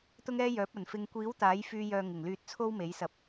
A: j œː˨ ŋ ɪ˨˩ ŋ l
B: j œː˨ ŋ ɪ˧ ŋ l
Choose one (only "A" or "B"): A